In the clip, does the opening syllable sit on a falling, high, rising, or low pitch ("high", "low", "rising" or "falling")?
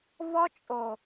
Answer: high